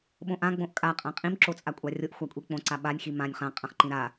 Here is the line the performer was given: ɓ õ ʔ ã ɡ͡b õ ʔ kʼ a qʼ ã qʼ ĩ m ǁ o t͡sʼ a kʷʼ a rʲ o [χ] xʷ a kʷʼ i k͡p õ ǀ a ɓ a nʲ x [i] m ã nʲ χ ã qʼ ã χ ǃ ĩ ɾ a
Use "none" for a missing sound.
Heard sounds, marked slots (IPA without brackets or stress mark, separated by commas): ʔ, i